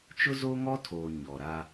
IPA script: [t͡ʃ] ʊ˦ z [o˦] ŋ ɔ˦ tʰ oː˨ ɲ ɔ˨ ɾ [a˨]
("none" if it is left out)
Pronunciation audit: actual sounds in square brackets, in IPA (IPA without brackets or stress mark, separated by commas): t͡ʃ, o˦, a˦